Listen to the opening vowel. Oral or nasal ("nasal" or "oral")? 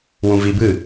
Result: nasal